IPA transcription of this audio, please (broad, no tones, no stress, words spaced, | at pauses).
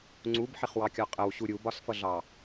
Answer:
ŋ͡ǀubħɪχwɑkʲɒ qʼəwɕu ɾʲubɒsfʌɮɑ